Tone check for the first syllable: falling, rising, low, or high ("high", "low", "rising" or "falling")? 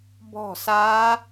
falling